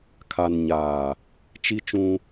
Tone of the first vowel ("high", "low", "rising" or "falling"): low